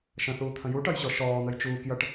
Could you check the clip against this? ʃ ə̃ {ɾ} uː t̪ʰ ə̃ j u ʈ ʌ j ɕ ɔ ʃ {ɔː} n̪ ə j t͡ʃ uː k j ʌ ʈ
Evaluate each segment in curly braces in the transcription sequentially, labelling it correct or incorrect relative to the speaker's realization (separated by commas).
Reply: incorrect, correct